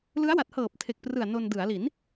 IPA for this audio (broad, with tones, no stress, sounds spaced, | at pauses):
l ɯ˦˥ a̯ w a˨˩ t̚ h ɤː˨˩ p̚ tʰ e˨˩ k̚ p r ɯ˨˩ a̯ n o˧ n d ɯ˩˦ a̯ l i˩˦ n